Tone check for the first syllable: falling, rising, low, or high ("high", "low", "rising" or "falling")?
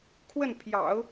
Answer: falling